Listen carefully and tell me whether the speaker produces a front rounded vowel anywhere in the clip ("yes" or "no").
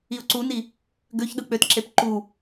yes